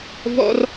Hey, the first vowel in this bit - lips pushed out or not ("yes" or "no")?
yes